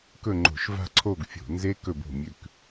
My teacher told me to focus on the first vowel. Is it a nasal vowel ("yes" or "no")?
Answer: no